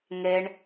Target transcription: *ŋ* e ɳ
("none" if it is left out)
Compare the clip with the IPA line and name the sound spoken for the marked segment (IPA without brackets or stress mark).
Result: ŋ